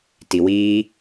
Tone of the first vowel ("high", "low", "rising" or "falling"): low